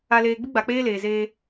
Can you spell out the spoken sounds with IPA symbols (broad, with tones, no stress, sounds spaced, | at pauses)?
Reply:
a˨ l eː˨ ɡ͡b ɪ˦ ɡ͡b a˨ k͡p eː˦ l eː˨ z eː˦